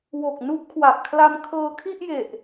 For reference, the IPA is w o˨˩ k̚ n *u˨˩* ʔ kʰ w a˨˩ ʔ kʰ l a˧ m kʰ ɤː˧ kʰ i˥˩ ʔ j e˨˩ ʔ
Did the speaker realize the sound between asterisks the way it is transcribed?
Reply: no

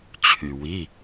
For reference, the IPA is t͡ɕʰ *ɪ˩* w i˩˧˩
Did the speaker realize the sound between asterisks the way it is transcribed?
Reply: no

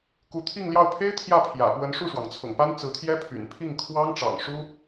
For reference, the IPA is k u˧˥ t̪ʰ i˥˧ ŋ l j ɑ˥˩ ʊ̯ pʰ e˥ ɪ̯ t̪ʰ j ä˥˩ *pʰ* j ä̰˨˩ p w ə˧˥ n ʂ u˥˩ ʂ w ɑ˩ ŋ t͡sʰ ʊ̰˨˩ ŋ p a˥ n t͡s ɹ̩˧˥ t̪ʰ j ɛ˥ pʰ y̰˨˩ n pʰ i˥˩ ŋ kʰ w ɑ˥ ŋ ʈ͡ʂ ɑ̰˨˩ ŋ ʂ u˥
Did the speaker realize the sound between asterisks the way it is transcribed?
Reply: yes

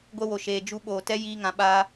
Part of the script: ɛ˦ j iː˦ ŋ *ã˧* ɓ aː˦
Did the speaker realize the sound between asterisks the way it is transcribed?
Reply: yes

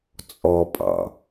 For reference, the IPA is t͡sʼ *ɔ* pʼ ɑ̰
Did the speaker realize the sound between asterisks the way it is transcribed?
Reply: yes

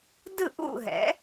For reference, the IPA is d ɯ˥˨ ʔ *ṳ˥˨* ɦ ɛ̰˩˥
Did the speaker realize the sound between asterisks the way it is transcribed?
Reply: no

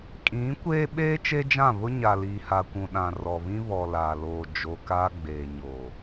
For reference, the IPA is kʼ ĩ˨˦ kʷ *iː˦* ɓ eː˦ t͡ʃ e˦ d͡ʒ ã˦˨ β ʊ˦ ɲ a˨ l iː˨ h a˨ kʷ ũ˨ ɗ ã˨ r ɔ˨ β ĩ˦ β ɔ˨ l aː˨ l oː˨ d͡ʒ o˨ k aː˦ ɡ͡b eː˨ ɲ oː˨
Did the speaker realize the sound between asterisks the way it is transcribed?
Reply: no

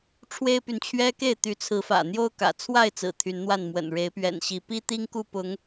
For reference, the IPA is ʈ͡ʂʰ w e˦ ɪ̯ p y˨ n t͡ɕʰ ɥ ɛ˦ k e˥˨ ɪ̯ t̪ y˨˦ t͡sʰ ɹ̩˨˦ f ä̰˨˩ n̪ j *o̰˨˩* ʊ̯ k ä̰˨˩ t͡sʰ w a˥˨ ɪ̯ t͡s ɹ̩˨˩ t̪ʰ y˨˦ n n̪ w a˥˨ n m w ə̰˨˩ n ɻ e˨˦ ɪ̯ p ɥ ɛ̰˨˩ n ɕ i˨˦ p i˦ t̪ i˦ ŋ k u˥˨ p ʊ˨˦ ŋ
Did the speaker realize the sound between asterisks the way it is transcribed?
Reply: no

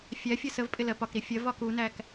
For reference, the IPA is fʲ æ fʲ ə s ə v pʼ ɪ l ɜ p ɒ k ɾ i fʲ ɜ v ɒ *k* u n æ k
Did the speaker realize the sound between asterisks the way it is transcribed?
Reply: yes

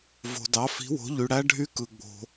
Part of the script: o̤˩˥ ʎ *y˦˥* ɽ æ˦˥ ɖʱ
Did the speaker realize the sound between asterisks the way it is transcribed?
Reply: no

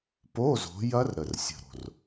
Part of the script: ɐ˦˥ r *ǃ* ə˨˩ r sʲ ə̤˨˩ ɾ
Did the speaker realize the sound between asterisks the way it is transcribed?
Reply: no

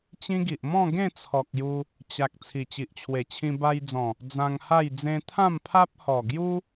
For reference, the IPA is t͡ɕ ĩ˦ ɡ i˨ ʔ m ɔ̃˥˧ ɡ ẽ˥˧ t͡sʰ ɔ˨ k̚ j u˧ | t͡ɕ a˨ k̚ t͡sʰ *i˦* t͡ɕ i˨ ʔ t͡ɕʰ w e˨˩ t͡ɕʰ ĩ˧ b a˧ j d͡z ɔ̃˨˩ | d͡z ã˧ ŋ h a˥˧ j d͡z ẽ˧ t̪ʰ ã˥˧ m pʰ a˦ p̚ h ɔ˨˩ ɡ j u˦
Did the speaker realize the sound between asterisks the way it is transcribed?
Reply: no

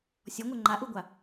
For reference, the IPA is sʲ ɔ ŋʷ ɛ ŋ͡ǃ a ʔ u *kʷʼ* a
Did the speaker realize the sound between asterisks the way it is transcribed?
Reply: no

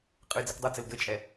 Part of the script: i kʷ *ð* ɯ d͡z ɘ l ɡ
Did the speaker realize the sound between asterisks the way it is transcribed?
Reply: no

